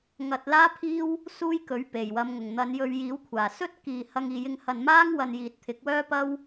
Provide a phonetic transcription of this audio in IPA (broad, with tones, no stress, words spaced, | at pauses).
ŋɐ˧t̚ laː˥pʰiː˥w | suː˥jkɵ˨˥ɥ pe˨˩jwɐ˨˧mŋʊ˨˩ŋ n̪ɐ˨˧njɵ˧ɥjiː˨˥wkʷʰaː˨˩ sɵ˥t̚kiː˨ hɐ˧ŋiː˨jɪ˧ŋhɐ˨n maː˥ŋ wɐ˧n jiː˨t̚t̪ʰɪ˨˥k̚ wœː˥pɐ˥w